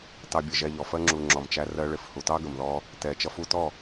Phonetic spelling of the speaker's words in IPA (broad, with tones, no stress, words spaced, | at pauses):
tɑ˧bʲə˨ʒɛ˧ʎɔ˨ fɜ˧ŋ͡ǁu˨ ŋ͡ǁɔ˨mt͡ʃæ˧ rɜ˧ɭɪ˧f hu˨tɑ˦ɡə˨mðɔ˧ | tɛ˨ t͡ʃʌ˧fu˧tɔ˦˨